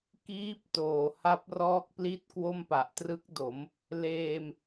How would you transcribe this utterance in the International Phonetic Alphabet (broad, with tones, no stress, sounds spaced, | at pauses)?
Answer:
k iː˦˥ p̚ t oː˨˩ h a˦˥ p̚ r ɔː˦˥ k̚ p l i˥˩ t̚ k w o˥˩ m p a˨˩ ʔ t r ɯ˦˥ k̚ d o˩˦ m | l eː˧ m